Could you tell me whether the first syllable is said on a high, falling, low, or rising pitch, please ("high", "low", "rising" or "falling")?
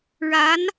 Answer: rising